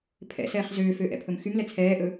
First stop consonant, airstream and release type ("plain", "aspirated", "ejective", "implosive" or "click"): aspirated